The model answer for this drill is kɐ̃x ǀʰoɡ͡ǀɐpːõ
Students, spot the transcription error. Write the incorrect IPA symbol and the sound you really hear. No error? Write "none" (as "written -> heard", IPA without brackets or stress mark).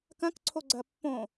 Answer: x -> k